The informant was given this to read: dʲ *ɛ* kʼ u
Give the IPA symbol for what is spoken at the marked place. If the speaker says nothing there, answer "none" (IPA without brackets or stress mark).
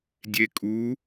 e